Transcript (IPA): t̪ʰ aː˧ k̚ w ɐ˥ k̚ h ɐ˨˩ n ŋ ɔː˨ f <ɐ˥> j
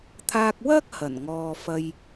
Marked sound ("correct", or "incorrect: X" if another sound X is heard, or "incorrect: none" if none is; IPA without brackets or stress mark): incorrect: ɐ˧